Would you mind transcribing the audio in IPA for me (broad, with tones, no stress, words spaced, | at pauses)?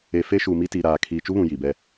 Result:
e˨fe˦ʃu˨mi˦ ti˨ɾaː˨ kʰiː˨t͡ʃu˦βũ˨ ji˨bɛ˦